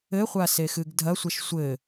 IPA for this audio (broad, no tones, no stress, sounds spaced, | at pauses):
ɘ χʷ a s e x ɨ ɡ dʱ ɐ sʷ ɛ ʃ sʷ ɘ